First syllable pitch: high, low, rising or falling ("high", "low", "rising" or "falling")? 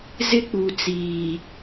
high